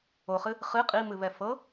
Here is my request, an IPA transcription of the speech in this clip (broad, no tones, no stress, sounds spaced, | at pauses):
o χ ɨ | χ ɨ qʼ i m ɨ β ɛ f ɤ